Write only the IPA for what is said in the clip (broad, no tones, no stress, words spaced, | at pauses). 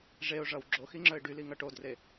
ʐeʊ̯ʐʌw ɡ͡ǁoxiŋ͡ǁœɪ̯ ɖyliŋʌ ʈodre